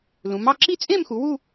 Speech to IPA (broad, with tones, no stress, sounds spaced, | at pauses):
l ũ˩˧ m ɑ˥˧ ǁ i˥˧ t͡sʼ ẽ˥˧ m x u˩˧ w u˥˧